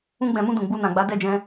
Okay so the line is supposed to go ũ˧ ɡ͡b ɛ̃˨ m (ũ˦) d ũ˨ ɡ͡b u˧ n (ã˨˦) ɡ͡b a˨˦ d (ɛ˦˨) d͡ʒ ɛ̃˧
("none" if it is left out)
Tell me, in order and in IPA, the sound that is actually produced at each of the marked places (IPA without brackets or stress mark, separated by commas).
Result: ũ˧, ã˨, ɛ˦˨